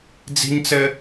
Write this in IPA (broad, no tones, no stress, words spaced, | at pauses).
d͡zi̤ɲt͡sɘ